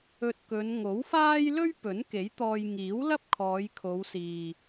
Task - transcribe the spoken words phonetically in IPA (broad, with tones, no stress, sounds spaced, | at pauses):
ɵ˧ t̚ k ɵ˨˧ n ŋ o˨˥ w f aː˥ j l ɵ˥ ɥ p ɵ˨˥ n k e˨˥ j t̪ ɔː˧ j ŋ iː˨˥ w l ɐ˥ p̚ kʰ ɔː˨˧ j kʰ o˨˧ w s iː˨